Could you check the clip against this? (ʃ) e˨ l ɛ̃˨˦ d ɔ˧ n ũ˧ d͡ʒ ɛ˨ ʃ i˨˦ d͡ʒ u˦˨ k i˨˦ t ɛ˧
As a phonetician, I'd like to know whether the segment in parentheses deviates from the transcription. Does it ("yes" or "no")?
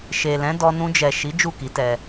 no